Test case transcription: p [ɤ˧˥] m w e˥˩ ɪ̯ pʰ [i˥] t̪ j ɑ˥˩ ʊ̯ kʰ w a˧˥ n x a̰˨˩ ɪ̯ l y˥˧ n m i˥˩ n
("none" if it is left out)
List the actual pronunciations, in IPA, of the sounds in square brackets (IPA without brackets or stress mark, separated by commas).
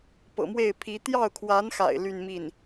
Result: ɤ̰˨˩, i˧˥